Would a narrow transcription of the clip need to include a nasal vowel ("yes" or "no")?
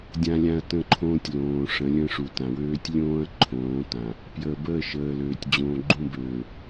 yes